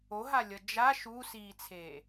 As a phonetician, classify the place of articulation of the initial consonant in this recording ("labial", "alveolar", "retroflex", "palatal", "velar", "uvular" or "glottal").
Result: glottal